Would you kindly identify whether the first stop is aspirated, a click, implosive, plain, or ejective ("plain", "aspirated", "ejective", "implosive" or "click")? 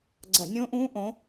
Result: click